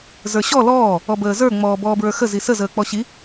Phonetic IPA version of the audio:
z ə˞ ɕ ɔ l ɔː | ɔ b əː z ə˞ ŋ͡m ɔː b ɔː b ɹ ə˞ x ə z i s ə z əː k͡p ɔ ɕ i

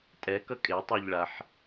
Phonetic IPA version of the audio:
tʼ ɛ k ʌ kʼ e tˤ e ʎ ɭ a ħ

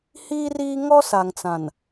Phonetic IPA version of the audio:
h iː˦ r iː˦ ŋ ɔ˦ s a˨ ŋ t͡s ã˨ n

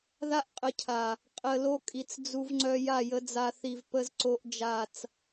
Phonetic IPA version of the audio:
ð a˦ ʔ qʼ ə˨˦ cʰ a˨ | qʼ ə˨ l o˦ kʼ i˨ t͡s d͡z u˦ v ŋ͡ǀ œ˦ j a˦˨ j ə˨˦ d͡z a˦ θ i˨ v p ə˦ z ǀ o˦ ʔ d͡ʒ a˦˨ t͡s

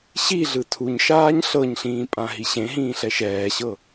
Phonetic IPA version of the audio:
ɕ i ɮ ɯ tʰ u ɲ ʃ aː ɲ ɬ ɤ ɲ ɬ ĩː pʼ ã ɦ i ɕ ẽ ɦ ĩː ɬ ɛ ʃ ɛː ɕ ɤ

